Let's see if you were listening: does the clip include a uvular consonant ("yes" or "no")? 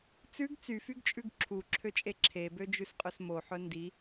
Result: yes